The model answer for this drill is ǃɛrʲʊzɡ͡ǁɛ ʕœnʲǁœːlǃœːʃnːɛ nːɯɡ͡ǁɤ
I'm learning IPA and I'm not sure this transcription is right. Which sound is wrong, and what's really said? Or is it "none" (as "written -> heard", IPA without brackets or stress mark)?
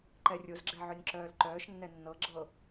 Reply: ɯ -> ɤ